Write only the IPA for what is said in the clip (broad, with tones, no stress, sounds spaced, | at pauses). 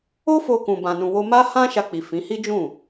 o˦ f o˧ k ũ˧ b ã˧ n ũ˧ w o˦ m a˦ h ã˦ ʃ a˧ k͡p i˨ f ĩ˨˦ h i˦ d͡ʒ ũ˦˨